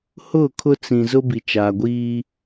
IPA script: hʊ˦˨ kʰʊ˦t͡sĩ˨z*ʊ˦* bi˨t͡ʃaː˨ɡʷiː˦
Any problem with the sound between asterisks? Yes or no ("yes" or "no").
no